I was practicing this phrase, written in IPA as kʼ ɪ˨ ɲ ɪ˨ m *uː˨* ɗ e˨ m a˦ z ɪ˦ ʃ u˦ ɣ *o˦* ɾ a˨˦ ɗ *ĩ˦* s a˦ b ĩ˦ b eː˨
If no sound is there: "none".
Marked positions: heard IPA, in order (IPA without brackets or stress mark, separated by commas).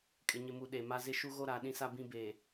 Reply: u˨, o˦, ĩ˦